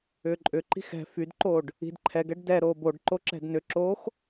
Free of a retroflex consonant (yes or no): no